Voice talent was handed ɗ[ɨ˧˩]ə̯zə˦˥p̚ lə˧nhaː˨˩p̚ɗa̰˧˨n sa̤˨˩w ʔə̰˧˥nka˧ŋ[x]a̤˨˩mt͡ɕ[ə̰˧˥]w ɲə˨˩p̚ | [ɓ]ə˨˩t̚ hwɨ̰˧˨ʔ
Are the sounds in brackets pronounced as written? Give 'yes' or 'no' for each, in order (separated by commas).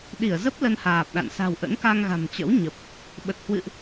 no, no, yes, yes